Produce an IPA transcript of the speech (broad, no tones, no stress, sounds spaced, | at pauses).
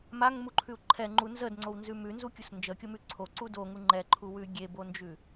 m a ŋ m u ǃʰ ʉ u̯ ǃʰ ɛ ŋ͡ǃ u n z ə d ŋ͡ǀ o w n z ʉ m ʉ n z u kʲ u s n d͡ʒ ə kʲ o m ʉ ǀʰ o ǀ u d o ŋ u ŋ͡ǃ ɛ ǃʰ u w ʉ ɡʲ e b o n d͡ʒ ʉ